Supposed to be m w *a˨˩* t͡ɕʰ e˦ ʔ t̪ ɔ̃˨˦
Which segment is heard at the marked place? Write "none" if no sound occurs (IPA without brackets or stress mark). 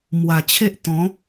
a˨˩